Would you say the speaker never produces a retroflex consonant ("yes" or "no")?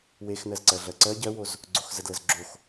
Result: yes